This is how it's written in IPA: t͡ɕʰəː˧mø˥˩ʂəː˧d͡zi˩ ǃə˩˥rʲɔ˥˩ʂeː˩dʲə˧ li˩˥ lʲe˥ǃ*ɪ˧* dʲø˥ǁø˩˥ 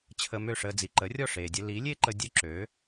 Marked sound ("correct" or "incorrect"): incorrect